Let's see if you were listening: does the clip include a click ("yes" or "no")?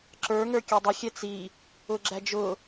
yes